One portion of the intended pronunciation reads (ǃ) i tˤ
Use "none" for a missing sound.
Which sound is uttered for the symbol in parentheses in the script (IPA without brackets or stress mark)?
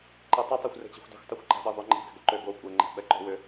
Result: ǃ